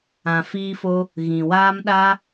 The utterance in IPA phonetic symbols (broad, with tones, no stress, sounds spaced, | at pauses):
ã˧ f iː˦ f o˦ | ɣ ĩ˨ w aː˦ m ɗ a˦